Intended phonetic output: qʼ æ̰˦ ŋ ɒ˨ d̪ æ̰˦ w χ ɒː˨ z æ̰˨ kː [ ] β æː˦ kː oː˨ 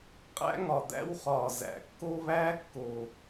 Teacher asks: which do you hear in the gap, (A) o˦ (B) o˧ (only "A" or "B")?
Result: A